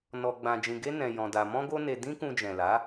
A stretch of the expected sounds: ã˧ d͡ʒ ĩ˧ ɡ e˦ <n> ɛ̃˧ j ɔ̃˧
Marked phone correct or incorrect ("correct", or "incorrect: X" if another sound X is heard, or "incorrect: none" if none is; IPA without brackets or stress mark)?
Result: correct